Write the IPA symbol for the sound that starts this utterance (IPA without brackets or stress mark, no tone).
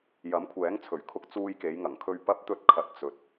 j